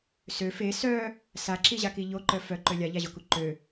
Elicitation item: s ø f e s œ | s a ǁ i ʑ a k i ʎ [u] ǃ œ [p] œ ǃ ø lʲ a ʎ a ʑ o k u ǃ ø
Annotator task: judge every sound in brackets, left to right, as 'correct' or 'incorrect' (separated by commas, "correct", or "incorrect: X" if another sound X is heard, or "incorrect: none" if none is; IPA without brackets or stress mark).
incorrect: o, incorrect: f